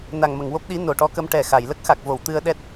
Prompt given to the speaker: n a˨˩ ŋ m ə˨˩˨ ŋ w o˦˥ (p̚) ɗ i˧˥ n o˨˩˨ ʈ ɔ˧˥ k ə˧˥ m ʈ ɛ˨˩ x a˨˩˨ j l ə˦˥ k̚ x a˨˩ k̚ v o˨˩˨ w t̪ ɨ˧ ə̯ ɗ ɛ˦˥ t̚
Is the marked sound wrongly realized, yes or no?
no